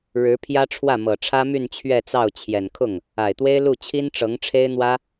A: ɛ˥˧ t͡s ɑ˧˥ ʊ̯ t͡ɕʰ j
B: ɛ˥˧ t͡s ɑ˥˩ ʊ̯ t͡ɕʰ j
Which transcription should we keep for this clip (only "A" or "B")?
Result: B